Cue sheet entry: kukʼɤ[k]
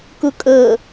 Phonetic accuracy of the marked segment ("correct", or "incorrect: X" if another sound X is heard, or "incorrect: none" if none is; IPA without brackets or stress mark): incorrect: none